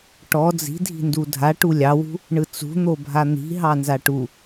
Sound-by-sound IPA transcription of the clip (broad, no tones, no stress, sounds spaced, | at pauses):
ʈ ɔ d͡z i̤ dʱ i̤ n d u dʱ a ʈ u lʲ ɑ w ṳ | ɳ ɯ t͡s ṳ n̪ o bʱ a n̪ i̤ ɦ ɑ n z a ʈ u